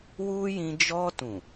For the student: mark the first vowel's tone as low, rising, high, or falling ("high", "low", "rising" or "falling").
high